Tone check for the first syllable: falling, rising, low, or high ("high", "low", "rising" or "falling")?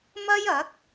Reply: high